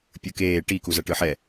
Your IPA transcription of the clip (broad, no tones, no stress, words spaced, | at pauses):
pʲɯkeː ʈi kuzʌʈɯħɛ